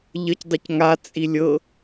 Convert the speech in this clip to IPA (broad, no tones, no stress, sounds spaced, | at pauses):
ʎ ə c dˤ e c ŋ a t͡sʼ i lʲ ɤ